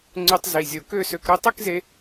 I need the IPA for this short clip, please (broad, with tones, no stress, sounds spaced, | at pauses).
ŋ͡ǀ y˧ tˤ z i˨˩ zʲ o˨˩ k ø˥˧ s ø˧ k ɾ u˥˧ tˤ y˥˧ k z e˧